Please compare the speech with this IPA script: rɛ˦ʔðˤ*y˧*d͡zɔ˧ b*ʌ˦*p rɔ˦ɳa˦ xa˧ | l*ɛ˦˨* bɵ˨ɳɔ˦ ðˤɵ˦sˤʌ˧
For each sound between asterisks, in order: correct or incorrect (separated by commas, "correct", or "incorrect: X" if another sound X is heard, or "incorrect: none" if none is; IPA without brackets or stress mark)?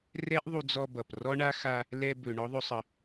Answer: incorrect: u˧, incorrect: ʌ˨, incorrect: ɛ˧